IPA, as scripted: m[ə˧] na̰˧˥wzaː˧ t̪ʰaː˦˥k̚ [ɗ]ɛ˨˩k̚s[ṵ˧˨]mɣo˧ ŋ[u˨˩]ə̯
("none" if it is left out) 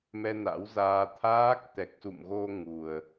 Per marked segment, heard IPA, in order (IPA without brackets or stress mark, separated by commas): ɛ˧, t̪, ṵ˧˨, u˨˩